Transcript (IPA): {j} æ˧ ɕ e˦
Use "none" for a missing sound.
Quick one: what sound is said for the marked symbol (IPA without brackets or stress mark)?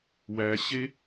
w